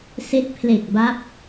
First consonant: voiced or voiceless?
voiceless